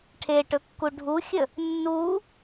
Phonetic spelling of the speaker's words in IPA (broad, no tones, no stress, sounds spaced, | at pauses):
ʈʰ e ʈ ɵ kː u ɖʱ u xʲ ə | nː u